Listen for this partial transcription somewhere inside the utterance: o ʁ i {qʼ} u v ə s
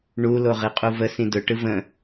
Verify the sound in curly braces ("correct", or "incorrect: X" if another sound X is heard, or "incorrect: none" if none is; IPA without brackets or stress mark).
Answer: correct